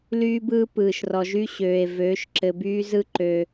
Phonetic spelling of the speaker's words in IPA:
lyː˦bɯː˦ pɯː˨ʃrɔ˨ʒy˦ ɕøː˨e̯ vøː˨˦ʃǁɘ˨byː˦ zɯ˦ ǃø˦

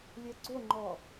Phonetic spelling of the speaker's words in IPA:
lʲɛɡ͡ǀoŋ͡ǃɔ

